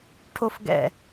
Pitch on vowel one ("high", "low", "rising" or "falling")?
high